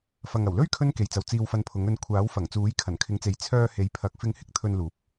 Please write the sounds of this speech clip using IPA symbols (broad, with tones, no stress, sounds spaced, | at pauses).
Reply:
f ɐ˨ ŋ ɐ˨˩ w l ɵ˥ ɥ kʰ ɵ˥ n k e˨ j t͡s ɐ˨ w t͡s iː˧ w f ɐ˧ n pʰ ʊ˨˥ ŋ ɵ˧ n kʷʰ aː˨˥ w f ɐ˨˩ ŋ t͡s uː˨˥ j kʰ ɐ˨˩ n kʰ ɪ˨˧ ŋ t͡s e˨ j t͡sʰ œː˧ h e˨˥ j pʰ ɐ˨˥ k̚ f ɪ˧ ŋ h ɪ˥ k̚ t̪ʰ ɵ˧ n l uː˨˥ p̚